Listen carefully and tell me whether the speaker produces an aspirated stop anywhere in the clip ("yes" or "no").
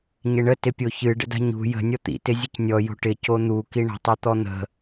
no